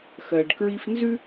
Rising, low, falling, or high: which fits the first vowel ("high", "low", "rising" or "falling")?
low